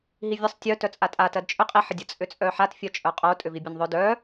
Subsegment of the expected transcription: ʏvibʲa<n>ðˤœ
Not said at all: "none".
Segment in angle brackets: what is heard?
n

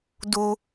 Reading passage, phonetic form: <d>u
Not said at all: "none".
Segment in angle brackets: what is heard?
d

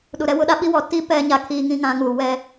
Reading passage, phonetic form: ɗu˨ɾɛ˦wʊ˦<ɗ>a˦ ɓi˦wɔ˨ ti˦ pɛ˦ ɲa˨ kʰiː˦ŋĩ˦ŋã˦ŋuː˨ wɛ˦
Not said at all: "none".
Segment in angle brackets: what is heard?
ɗ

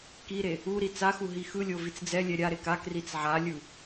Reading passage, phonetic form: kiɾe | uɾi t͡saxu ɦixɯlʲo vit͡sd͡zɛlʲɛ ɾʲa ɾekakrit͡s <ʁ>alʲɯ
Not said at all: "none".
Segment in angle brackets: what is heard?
ʕ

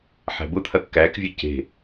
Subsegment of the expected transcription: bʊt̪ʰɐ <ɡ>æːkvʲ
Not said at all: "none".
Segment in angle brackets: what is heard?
kː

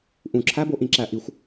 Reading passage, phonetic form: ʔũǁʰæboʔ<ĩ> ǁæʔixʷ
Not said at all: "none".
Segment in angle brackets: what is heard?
ĩ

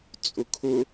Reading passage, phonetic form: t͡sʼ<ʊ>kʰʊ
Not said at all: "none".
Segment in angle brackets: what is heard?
ʊ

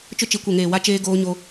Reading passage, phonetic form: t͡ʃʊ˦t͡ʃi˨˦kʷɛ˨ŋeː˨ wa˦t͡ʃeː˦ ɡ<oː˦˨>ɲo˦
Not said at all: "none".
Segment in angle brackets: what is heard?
oː˦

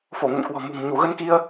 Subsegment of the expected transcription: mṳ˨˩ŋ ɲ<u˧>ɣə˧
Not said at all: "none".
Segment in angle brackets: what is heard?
u˧˩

